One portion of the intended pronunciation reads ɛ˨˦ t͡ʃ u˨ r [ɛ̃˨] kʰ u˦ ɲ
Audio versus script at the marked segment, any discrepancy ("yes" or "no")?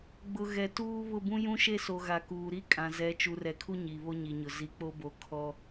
yes